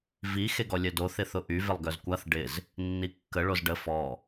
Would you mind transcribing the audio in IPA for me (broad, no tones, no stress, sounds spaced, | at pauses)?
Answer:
v i x e ɡ ɔ lʲ œ d o θ ɪ θ ʊ ʔ y v ɪ lˠ ɡ œ z kʷ a θ ɖ ɪ z | nː i kː ə ɭ o z ɖ ə f ɔ